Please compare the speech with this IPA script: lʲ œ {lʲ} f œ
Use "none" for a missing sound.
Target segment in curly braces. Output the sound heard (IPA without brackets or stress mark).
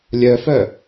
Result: none